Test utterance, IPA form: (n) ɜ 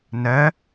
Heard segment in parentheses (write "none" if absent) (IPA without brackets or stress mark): n